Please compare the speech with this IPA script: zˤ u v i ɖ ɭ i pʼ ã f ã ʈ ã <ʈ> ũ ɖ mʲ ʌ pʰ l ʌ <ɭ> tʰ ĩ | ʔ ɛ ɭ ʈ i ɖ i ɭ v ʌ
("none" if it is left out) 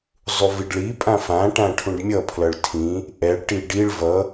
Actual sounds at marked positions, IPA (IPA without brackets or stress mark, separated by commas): ʈʰ, ɭ